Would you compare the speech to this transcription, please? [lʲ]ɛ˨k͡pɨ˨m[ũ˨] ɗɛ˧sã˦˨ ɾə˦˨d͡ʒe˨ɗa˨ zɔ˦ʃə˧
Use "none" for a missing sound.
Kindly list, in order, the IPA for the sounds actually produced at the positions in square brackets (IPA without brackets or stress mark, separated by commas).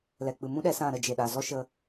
l, ũ˦